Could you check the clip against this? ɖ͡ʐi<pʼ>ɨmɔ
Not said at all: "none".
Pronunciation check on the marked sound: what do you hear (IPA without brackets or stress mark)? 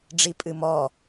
pʼ